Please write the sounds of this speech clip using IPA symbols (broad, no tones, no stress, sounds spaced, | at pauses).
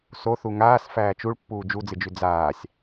s o θ u ŋ aː s f æː t͡ʃ u ɭ pː uː d͡ʒ u d͡z ɨ d͡ʒ ʉ d͡z aː sʲ